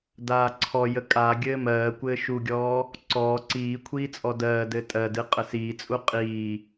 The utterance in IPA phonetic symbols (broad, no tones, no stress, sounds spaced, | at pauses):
d aː ǀʰ ɔ j ə kʼ a ɡʲ ɘː m ɜː kʷ ɘː ʃ u ɡʲ ɔː | ǀ ɔː ǀ iː kʷʰ iː t͡sʼ ɔ d ɜː d ɘː tʼ ɜ d ɨ qʼ ə s iː t͡sʼ u qʼ iː